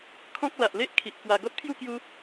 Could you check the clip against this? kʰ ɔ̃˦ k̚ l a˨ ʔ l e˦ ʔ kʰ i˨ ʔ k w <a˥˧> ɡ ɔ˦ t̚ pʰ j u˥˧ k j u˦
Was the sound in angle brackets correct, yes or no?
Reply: no